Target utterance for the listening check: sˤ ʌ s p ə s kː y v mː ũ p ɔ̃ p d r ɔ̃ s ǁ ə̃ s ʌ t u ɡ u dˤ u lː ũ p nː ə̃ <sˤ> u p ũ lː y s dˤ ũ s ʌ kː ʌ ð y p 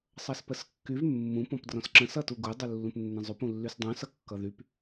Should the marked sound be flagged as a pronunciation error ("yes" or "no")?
yes